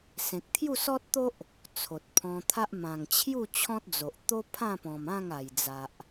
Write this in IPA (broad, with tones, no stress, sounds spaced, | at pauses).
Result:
s ẽ˨ k̚ t̪ʰ j u˥˧ s ɔ˦ t̚ t̪ o˦ ʔ | t͡sʰ o˨ t̚ pʰ ɔ̃˧ t̪ʰ a˦ ʔ m ã˨˩ ŋ t͡ɕʰ j u˥˧ t͡ɕʰ ɔ̃˦ t̚ d͡z o˨ ʔ t̪ o˦ pʰ ã˥˧ p ɔ̃˨˩ m ã˥˧ ŋ a˨˩ j d͡z a˨ ʔ